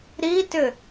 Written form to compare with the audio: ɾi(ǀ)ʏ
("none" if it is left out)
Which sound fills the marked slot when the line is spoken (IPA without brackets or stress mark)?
t